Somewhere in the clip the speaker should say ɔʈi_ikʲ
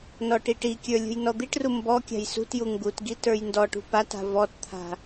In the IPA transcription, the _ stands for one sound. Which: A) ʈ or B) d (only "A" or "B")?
A